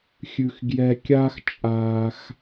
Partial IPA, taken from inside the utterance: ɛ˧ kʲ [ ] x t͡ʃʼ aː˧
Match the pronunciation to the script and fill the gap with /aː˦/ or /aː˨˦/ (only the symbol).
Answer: aː˦